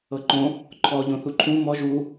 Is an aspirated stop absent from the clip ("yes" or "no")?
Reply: no